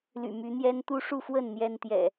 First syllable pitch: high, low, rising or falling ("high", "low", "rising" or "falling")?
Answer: low